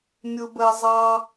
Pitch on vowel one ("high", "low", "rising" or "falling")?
high